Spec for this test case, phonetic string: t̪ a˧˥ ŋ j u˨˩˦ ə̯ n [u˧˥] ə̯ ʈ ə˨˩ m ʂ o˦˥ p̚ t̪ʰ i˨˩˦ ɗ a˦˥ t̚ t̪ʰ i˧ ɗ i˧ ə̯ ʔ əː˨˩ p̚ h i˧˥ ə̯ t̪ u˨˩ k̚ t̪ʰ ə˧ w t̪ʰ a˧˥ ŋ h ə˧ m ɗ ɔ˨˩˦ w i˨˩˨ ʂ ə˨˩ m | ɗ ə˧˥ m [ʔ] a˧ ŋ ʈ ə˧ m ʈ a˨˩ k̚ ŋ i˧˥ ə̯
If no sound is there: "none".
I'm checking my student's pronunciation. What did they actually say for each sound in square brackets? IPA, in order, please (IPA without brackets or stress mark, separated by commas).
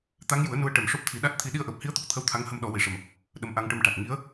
u˧˥, ʔ